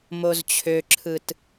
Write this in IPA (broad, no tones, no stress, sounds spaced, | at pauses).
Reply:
m o z t͡ɕʰ ø ǁʰ ɯ t